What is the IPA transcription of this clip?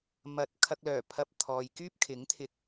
m ɐ˧ t̚ kʰ ɐ˧ k̚ l œː˨˩ pʰ ɐ˧ p̚ t̪ʰ ɔː˨ j k yː˥ p̚ kʰ ɪ˨˥ ŋ t̪ʰ ɪ˧ k̚

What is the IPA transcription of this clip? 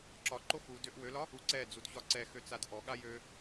ǁ ɒ ǃ o x u d ø ʔ w ø l ɒ | u ǀ ɛ d͡z u d ç ɒ ǀ ɛ x ø t͡s a d ʔ ɔ ɠ a j ø

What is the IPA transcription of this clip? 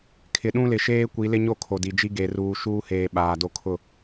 kʰ ɪ˨ ɗ ũ˦ l ɪ˨ ʃ eː˦ kʷ i˨˦ l ɪ˦ ɲ o˦˨ kʰ o˨ d i˨ d͡ʒ i˦ ɡ e˨ r uː˨ ʃ uː˦ h eː˨ ɓ aː˨ d o˦ kʰ ʊ˦˨

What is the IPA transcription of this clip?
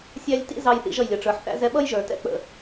sʲ æ˧ lʲ t ḭ˦ z ɑ˧ j θ ḭ˧ ʒ ʌ˨ j lʲ ʌ˨ ʈ͡ʂ ə˞˨ ħ θ æ̰˧ z ɛ˧ ɓ ʌ˦ j ʒ ə˞˨ t ɛ̰˧ k͡p ə̰˨

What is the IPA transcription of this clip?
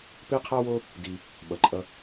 p e˦ qʰ a˦ w o˦ | d i˧ | ɓ ʌ˨ ǃʼ ʌ˧

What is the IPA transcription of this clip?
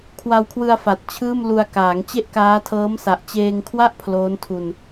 kʰ w a˧ w kʰ w ɯ˧ a̯ f a˨˩ t̚ t͡ɕʰ ɯː˥˩ m l u˧ a̯ k aː˩˦ ŋ t͡ɕ e˥˩ ʔ k aː˦˥ tʰ ɤː˦˥ m s a˨˩ ʔ t͡ɕ eː˧ ŋ kʰ w a˥˩ ʔ pʰ l oː˦˥ n tʰ u˧ n

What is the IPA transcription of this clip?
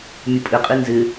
mʲ ʊ pʼ ɪ qʼ i n z ɪ

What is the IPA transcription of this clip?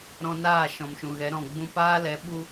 ɾ ɔ̃˧ n aː˦˨ ʃ ɔ̃˨ m ʃ ũ˨ ɣ ɛ˨˦ ɾ ɔ̃˨ ɡ͡b ũ˧ p aː˦ l ɛ˨˦ ɓ u˦

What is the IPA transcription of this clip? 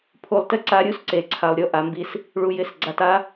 pʰ u˨ lˠ t ɪ˦ ǀ a˦ ɾʲ u˦ s ǀ e˨ ǀʰ a˨ lˠ ɾʲ o˦ ʔ a˨ m b i˦ s | ɭ u˨ j ɪ˦˨ s ɡ͡ǀ a˨ t a˦

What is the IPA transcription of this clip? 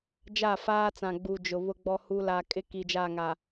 d͡ʒ a˦˨ f aː˦ t͡s ã˨ ɡ͡b u˨ d͡ʒ ʊ˨ β ʊ˦ ɡ͡b ɔ˦ h u˦ l a˨ kʼ ɪ˦ k i˨ d͡ʒ a˦˨ ŋ a˨

